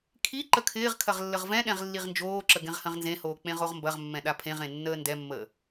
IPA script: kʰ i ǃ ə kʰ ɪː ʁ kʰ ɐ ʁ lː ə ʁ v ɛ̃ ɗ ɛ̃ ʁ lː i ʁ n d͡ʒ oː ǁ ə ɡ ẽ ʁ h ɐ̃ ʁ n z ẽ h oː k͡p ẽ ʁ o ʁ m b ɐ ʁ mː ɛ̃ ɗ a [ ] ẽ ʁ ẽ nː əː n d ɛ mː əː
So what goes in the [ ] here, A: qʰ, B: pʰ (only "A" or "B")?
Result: B